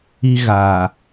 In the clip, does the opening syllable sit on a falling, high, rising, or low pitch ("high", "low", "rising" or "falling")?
high